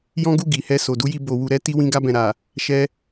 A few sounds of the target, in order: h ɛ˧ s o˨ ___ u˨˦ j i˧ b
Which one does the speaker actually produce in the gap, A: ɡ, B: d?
B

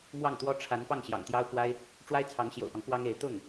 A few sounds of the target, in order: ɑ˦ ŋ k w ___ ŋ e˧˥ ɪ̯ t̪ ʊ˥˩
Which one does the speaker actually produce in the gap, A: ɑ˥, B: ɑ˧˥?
A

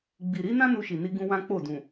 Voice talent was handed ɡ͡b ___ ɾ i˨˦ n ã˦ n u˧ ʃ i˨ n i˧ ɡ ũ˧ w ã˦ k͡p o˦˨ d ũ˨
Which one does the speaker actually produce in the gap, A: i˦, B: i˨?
B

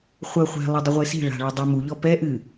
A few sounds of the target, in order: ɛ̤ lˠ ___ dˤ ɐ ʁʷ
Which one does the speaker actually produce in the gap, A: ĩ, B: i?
B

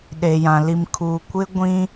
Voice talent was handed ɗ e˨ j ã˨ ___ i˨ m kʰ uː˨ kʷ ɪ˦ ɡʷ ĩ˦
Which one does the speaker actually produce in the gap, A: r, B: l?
B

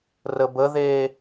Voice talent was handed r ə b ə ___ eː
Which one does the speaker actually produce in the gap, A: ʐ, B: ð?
B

